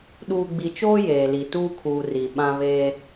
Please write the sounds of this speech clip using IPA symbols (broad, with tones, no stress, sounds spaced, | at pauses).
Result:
ɗ uː˨ ɡ͡b i˨ t͡ʃ oː˦ j eː˨ l i˨ t uː˦ kʰ uː˨ r i˨ ɓ ã˦ β eː˦